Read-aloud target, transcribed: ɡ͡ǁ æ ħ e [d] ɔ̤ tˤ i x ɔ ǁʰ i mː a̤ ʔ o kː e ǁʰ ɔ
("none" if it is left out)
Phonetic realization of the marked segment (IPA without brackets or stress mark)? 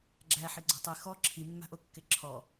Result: ɡ͡ǀ